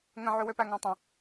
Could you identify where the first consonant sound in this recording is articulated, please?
velar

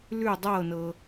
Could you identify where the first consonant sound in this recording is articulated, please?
alveolar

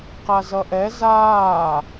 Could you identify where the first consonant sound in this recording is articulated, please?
uvular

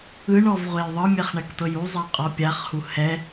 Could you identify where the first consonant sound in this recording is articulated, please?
retroflex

